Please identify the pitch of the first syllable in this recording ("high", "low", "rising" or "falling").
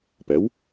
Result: rising